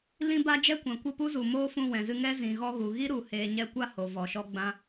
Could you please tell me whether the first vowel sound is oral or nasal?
nasal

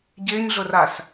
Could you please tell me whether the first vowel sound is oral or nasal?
oral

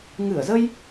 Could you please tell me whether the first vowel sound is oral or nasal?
oral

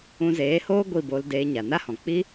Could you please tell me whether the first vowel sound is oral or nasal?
nasal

